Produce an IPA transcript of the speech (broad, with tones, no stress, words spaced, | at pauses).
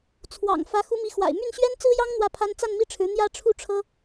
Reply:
t͡sʰwɑ̰˨˩ŋ fä˧˥ xu˧˥mi˧˥ xwa̰˨˩ɪ̯my˥˩n ɕɥɛ˥nt͡sɹ̩˥jɑ˥ŋ n̪wä˥˩pʰa˥n t͡sa˥˧nmi˥˩ʈ͡ʂʰɻ̩˧˥ n̪jä˥ʈ͡ʂʰu˥˩ʈ͡ʂʰɤ˥